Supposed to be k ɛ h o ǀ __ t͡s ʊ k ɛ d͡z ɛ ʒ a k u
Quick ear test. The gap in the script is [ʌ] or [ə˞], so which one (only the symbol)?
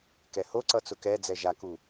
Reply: ʌ